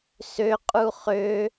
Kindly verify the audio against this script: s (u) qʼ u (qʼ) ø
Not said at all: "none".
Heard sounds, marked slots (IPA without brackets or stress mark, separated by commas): ø, χ